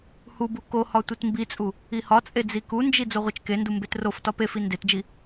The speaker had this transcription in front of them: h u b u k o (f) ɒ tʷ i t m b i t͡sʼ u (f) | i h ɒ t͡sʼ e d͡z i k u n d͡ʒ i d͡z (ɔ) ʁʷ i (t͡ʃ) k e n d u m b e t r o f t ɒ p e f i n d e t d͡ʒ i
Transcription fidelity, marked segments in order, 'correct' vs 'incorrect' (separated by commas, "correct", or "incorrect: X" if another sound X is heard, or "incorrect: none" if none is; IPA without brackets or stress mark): incorrect: h, incorrect: none, incorrect: o, correct